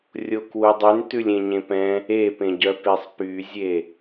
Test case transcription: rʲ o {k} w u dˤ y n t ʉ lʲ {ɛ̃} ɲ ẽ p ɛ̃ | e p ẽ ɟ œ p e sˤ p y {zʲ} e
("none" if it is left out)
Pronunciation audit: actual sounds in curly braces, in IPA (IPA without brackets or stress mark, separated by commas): k, ẽ, zʲ